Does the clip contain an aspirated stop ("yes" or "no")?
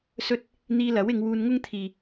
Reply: yes